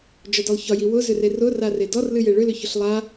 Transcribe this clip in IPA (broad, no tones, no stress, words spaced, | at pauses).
d͡ʒɒdɔlˠçɒji wʊzʏ rerʊrare dɔrlɨje ɭʏlʏ çʊɬlˠa